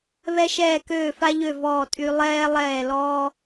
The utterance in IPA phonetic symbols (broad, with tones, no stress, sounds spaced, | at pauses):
β ɛ˧ ʃ ɛː˧˩ k øː˧˩ f a˧ ʎ ø˧˩ v ɔː˧˩ tʼ y˧ lˠ ɛː˧ lˠ ɛː˧˩ l ɔː˧